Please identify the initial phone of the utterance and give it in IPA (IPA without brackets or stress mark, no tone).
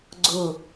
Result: ɡ͡ǀ